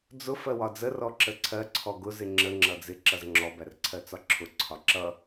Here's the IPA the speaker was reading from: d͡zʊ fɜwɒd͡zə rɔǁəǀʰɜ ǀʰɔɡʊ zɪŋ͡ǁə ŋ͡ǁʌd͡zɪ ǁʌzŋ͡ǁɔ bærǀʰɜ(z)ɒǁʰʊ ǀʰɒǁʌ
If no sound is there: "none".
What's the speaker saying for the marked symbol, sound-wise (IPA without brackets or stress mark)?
t͡s